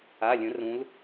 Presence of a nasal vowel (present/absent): present